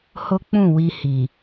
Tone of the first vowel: high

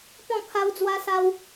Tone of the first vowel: falling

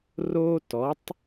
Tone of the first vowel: high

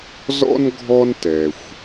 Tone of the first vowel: high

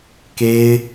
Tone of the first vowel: high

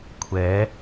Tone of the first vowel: rising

